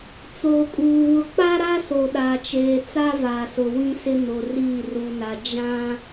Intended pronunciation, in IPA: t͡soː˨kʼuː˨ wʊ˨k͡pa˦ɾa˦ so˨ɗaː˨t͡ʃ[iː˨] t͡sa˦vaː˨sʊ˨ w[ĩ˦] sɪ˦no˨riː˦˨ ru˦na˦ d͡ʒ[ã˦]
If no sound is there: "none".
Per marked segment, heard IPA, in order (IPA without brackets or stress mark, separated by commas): eː˨, ĩ˦, ã˦